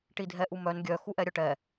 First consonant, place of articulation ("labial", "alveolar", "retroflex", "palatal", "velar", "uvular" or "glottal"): retroflex